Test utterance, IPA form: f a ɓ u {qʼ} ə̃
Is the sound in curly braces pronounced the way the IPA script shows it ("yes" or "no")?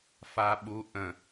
no